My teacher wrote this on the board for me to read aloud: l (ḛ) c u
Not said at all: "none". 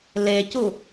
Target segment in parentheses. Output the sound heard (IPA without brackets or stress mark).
e